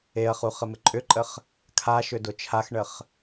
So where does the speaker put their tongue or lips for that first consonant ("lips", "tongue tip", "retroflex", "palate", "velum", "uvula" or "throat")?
uvula